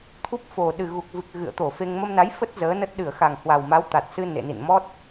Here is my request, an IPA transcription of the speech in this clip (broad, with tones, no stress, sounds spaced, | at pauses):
t̪ʰ u˦˥ p̚ f o˨˩ ɗ ɨ˨˩ ɣ u˨˩ k̚ v ɨ˨˩ k̚ ɣ ɨ̰˧˨ ə̯ t̪ o˧˩ f e˧ ŋ m ə˧ m n a˨˦ j f ə˦˥ t̚ z əː˨˦ n ə˦˥ t̚ ɗ ɨ˧˩ ə̯ x a˨˩ ŋ h w a˨˩ w m a˨˦ w t̪ a˨˩ t̚ s ɨ˧ n ḛ˧˨ n ḭ˧˨ n m ɔ˦˥ t̚